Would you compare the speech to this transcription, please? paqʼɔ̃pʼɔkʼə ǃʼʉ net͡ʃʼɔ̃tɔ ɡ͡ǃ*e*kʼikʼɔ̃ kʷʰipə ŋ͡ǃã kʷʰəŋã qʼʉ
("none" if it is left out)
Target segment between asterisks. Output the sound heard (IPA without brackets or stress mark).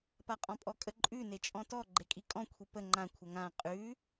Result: e